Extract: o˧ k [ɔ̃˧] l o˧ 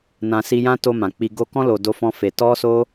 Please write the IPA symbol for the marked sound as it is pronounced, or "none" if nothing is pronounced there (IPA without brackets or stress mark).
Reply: ɔ̃˦